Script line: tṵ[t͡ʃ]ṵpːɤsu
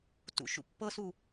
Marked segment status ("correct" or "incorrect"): incorrect